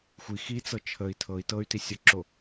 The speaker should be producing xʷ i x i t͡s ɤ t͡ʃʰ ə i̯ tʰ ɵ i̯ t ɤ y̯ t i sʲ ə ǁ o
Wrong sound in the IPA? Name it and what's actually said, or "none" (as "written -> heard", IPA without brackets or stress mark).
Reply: ɵ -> ɤ